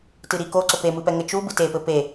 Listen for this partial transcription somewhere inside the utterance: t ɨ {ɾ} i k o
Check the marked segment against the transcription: correct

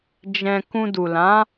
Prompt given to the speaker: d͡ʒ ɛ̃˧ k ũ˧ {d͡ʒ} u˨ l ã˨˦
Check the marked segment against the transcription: incorrect: d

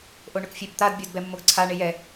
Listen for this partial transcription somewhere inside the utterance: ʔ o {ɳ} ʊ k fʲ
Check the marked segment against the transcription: correct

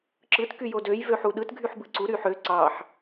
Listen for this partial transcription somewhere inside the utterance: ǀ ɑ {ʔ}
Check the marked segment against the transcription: incorrect: ħ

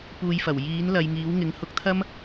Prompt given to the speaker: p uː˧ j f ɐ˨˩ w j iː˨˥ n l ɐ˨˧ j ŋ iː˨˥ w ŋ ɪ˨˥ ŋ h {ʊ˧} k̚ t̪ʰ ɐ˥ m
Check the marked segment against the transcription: correct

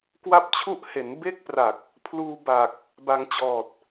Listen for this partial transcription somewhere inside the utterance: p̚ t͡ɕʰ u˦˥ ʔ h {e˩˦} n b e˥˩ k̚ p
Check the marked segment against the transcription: correct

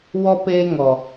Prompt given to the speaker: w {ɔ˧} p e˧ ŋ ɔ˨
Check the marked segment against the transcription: correct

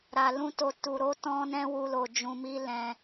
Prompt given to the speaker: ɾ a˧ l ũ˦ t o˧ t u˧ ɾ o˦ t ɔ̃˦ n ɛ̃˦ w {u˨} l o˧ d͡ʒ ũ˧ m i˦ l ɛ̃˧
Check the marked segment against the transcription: incorrect: u˦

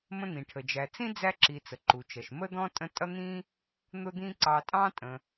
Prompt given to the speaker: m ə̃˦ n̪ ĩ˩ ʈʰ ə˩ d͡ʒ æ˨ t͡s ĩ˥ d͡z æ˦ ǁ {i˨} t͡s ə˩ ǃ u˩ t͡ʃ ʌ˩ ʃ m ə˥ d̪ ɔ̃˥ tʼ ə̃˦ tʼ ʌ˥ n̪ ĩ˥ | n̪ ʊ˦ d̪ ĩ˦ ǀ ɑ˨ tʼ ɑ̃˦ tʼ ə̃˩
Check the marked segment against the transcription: correct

